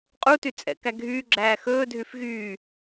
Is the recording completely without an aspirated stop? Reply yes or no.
yes